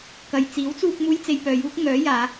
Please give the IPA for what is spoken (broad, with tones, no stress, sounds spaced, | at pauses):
k ɐ˨ j t͡s iː˨˥ w t͡s uː˧ k̚ m uː˧ j t͡s e˧ j p œː˨ j uː˥ k̚ ŋ œː˨˥ j aː˨˧